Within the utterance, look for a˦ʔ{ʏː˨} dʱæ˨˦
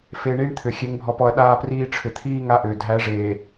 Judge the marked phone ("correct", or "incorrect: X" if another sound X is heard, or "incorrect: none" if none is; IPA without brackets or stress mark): correct